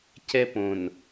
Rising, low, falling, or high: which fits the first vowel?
high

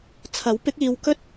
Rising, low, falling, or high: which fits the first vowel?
rising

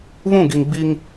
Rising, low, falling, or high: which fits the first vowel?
falling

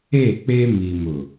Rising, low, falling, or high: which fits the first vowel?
falling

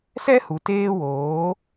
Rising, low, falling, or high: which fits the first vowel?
high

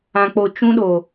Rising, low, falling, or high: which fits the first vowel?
low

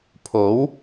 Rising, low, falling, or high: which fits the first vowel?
rising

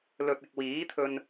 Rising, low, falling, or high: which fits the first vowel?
low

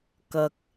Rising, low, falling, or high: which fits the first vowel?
high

